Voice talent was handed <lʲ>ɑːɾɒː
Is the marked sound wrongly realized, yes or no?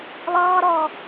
yes